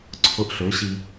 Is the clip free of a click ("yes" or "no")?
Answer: no